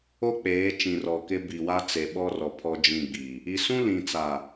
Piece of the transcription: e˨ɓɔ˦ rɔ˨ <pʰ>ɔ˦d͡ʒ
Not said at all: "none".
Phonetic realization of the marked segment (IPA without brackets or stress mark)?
pʰ